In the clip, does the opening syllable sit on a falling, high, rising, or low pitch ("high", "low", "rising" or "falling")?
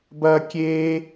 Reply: high